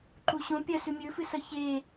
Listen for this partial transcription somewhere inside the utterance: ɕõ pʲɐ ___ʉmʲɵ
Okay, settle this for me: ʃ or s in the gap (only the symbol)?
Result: s